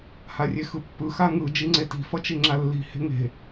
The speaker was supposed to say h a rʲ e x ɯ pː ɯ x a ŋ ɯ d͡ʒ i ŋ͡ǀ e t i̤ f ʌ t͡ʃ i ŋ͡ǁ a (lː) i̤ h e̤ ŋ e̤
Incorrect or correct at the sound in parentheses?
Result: correct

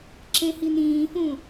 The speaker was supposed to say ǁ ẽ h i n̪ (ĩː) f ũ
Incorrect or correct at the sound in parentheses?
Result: correct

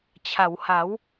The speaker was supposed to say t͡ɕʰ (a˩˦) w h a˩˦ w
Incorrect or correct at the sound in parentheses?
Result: correct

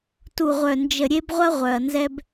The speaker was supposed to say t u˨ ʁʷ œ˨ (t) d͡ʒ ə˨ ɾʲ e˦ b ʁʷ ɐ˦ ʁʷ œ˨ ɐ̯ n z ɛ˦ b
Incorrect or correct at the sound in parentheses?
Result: incorrect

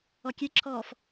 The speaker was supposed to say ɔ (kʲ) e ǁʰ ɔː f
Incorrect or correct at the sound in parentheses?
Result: correct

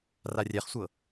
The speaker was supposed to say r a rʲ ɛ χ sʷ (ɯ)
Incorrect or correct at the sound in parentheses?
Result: incorrect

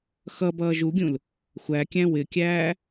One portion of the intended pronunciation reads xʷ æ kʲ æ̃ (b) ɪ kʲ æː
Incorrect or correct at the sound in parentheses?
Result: incorrect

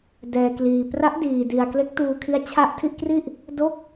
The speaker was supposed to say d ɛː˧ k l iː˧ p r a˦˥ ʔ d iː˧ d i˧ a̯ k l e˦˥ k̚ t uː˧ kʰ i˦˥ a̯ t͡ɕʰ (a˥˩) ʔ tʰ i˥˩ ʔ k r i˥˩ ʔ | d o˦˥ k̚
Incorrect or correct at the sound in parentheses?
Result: correct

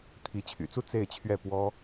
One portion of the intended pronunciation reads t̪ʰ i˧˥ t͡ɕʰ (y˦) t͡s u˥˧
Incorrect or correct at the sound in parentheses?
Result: incorrect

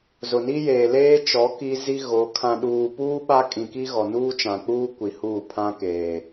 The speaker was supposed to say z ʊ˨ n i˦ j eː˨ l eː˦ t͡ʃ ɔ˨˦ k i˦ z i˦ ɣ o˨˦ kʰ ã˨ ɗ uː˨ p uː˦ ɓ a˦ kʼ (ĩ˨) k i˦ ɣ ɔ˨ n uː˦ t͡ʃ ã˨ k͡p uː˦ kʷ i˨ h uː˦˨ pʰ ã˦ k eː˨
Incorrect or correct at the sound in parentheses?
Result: correct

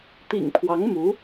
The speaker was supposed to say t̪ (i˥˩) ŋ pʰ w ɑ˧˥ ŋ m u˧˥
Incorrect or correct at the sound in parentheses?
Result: incorrect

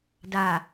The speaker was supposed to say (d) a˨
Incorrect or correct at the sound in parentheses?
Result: correct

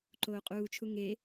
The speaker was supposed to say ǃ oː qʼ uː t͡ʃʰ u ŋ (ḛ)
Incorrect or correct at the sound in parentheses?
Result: incorrect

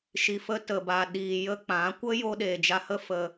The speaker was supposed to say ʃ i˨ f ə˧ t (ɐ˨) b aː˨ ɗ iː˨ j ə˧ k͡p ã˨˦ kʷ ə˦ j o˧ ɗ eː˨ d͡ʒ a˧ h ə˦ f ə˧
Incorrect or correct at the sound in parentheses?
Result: incorrect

